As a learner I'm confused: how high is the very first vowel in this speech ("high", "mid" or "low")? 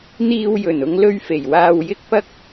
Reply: high